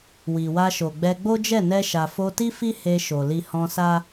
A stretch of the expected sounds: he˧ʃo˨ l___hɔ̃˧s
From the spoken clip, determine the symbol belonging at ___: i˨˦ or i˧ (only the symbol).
i˧